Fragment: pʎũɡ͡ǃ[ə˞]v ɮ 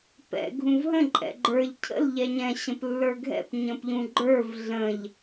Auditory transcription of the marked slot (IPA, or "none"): ə˞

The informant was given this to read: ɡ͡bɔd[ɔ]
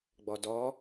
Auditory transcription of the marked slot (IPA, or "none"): ɔ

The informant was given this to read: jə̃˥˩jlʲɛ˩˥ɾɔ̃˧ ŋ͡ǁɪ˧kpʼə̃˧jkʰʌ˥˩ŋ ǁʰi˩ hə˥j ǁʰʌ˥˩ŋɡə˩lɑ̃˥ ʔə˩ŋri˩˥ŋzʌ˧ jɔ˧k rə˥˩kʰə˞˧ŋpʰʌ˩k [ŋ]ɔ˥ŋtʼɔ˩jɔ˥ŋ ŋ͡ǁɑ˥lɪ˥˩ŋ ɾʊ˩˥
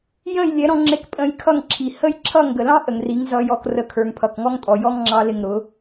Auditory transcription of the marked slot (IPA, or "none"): ŋ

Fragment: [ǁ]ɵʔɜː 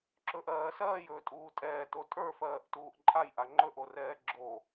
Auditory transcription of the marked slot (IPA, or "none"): ǁ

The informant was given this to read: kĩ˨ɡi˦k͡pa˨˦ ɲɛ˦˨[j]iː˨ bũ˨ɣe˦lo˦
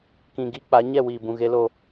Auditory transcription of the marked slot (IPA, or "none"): w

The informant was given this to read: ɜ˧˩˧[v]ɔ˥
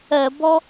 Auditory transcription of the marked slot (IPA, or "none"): b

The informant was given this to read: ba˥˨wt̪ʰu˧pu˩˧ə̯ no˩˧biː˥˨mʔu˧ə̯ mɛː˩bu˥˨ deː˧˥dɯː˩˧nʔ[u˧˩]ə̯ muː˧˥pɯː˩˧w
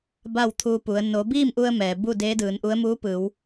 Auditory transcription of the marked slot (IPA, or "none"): u˧˥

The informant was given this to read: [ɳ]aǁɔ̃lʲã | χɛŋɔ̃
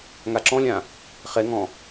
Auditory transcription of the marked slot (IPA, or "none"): ŋ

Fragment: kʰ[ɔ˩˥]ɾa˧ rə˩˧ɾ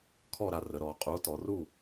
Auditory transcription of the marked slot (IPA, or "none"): ɔ˥˨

